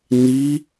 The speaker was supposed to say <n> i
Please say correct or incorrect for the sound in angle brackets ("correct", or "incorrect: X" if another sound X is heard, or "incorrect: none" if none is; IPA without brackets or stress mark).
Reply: correct